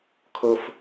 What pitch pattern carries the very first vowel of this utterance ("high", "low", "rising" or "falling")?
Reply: high